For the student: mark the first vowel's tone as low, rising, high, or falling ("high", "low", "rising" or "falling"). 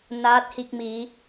rising